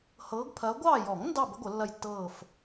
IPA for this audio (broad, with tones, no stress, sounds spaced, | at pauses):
h ɤː˨˦ ɡ pʰ ɐː˨˦ ɡʷ ɑː˦˨ j ɔ˨˩˦ ŋ n d ɑ˦˨ b ə˨˦ ɡʷ ə˨˩˦ lː ɐ˦˨ j tː ɤː˦˨ f